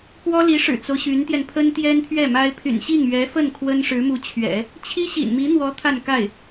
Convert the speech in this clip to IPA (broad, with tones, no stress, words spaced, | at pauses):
kwɔ˥li˧˥ʂɻ̩˨˩t͡so˦ʊ̯ ɕy˧˥nt̪jɛ˧n pʰə˥nt̪jɛ˥nt̪ʰɥɛ˥˩ma˥ɪ̯ pʰy̰˨˩nɕi˥˩ŋ ɥɛ˧˥fə˥˩n kʰwə˥nʂɻ̩˧˥mu˧˥t͡ɕʰɥɛ̰˨˩˦ | t͡ɕʰi˥ɕḭ˨˩nmi˧˥n̪wɔ˧˥ t̪ʰa˥˧nka˥˩ɪ̯